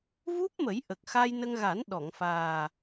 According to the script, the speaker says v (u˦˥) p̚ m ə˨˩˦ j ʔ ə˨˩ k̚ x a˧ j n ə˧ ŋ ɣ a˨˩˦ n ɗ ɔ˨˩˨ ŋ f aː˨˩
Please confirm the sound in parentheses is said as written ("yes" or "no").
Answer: yes